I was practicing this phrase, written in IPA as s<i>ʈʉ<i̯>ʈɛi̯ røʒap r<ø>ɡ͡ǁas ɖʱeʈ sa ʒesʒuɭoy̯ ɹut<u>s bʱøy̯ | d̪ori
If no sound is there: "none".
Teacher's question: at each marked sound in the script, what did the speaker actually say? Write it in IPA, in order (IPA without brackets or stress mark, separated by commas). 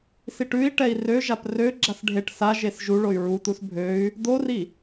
i, i̯, ø, u